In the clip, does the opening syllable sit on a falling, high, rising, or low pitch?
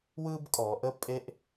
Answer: high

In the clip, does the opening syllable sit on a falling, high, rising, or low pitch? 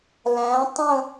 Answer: rising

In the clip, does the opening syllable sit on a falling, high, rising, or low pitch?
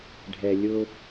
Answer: low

